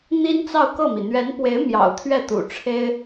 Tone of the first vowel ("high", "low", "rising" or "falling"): high